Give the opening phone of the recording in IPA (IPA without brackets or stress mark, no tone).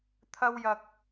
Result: t̪ʰ